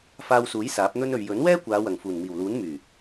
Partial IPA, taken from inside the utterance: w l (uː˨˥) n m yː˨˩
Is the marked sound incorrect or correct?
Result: correct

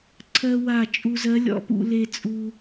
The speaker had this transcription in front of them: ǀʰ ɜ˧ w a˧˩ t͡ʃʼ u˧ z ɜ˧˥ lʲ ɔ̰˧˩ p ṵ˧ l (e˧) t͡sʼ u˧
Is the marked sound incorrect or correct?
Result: correct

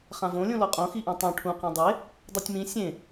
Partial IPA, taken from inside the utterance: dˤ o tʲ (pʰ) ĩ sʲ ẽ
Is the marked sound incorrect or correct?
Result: incorrect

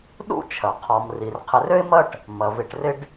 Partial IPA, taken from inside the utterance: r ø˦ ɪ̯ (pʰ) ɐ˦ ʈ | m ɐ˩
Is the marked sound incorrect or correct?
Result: incorrect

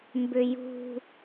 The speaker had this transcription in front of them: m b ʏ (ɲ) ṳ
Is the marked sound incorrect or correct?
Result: incorrect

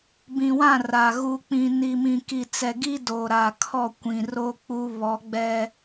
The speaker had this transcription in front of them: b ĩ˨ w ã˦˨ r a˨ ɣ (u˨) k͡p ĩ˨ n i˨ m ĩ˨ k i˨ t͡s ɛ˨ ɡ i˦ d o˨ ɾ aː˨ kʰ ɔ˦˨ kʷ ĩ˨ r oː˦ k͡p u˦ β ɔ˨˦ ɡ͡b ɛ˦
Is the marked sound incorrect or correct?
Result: correct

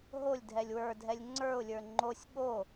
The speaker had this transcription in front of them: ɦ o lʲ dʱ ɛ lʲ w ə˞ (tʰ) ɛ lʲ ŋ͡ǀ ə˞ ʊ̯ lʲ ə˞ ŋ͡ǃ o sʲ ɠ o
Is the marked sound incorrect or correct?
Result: incorrect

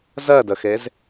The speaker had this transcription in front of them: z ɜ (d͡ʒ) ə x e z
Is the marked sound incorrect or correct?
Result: incorrect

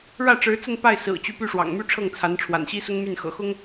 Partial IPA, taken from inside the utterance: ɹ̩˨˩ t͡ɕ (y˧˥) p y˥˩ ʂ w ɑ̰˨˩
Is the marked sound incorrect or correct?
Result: correct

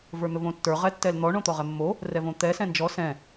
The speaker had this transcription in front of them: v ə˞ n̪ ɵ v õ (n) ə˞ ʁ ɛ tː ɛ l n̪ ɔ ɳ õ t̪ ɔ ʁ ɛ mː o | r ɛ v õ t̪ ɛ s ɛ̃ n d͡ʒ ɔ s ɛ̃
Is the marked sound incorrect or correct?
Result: incorrect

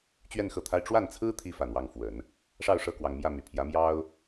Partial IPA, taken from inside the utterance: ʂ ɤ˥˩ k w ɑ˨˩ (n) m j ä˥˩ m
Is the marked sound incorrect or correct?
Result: incorrect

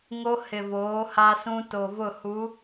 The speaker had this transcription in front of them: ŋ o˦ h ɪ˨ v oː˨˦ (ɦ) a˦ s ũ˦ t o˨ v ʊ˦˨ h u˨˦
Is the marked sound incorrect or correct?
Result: incorrect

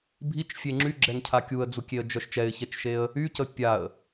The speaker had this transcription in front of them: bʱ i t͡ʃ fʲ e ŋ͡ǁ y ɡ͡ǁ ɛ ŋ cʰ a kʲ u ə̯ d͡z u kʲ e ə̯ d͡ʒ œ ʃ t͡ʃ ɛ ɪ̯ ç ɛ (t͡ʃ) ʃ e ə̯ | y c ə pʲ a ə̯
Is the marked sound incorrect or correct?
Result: correct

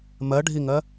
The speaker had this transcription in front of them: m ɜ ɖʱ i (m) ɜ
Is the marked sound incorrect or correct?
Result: incorrect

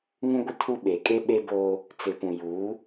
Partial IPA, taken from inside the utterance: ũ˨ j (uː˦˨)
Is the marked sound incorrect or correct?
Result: incorrect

